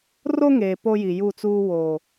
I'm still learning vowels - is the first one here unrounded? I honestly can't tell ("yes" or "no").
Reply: no